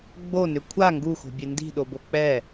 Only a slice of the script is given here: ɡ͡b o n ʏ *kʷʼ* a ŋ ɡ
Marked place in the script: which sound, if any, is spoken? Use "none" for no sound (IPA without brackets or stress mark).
kʷʰ